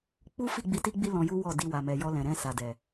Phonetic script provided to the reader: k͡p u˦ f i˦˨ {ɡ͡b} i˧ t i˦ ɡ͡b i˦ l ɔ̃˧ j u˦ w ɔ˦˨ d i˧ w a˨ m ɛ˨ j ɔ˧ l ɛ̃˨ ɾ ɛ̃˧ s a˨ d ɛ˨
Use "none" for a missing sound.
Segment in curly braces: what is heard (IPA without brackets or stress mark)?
ɡ͡b